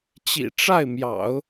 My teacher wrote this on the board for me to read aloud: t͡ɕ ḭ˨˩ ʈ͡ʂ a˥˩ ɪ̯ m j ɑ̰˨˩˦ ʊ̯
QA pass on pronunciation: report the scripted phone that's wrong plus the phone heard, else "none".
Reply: none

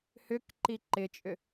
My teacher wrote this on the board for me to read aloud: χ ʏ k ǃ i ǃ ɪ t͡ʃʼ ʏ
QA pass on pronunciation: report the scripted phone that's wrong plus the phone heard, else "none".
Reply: χ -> h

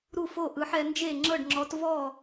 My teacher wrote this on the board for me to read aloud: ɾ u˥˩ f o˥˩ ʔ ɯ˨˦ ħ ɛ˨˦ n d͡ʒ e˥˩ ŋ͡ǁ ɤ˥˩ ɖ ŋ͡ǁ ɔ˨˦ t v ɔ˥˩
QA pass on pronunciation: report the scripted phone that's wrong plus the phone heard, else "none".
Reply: none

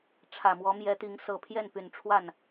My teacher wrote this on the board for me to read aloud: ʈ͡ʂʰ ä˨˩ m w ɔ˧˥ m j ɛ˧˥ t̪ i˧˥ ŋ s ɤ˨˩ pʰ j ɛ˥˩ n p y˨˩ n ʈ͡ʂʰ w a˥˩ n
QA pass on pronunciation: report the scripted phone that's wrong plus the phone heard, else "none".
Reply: none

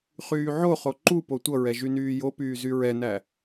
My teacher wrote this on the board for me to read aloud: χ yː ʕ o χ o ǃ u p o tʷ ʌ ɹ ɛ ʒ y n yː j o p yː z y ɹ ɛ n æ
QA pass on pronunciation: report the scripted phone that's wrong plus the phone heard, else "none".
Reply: none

